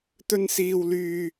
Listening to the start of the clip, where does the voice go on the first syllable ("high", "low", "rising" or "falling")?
high